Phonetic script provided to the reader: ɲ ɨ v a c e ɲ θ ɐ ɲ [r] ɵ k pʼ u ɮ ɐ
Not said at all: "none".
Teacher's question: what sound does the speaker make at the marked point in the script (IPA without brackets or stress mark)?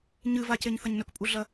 n